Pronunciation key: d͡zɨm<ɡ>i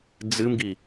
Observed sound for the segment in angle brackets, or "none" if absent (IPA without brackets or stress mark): ɡ